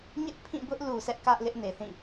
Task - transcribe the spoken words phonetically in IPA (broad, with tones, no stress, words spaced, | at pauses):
ɲɪ˦ʔpʰĩ˦˨bʊ˦ʔ lu˨sʰɛ˦ʔ kä˦ʔlɪ˦ʔ ne˨θĩ˦˨